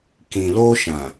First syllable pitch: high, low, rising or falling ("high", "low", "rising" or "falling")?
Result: low